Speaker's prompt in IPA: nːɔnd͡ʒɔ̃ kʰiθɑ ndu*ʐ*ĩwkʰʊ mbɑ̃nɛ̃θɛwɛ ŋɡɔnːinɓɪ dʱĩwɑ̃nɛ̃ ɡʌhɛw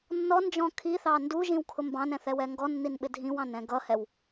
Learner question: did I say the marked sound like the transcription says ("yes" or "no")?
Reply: no